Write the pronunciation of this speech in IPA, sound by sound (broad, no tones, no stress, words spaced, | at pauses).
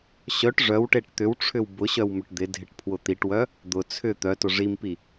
ɕœʈ ʐœwʈeʈ t̪ʏwʈ͡ʂʰʏw bʊɕœwmʏʈ d̪ɪdʱɪʈpʰwʊ t̪iʈwœ | d̪ʊ t͡sʰʏ t̪œtʊ ʐimpi